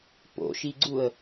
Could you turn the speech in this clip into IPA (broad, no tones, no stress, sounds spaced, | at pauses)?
p o̰ ʃ i ɡ͡ǀ u ə̯